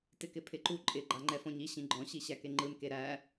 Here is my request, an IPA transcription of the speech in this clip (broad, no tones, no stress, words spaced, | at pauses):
tɪkɪpʰɪǃu ǃʼɪ ɡ͡ǃaŋ͡ǃɛfɔ̃ɲi ɕĩɡ͡ǃɔ̃ ɕiɕækeŋ͡ǃɯn keɾæ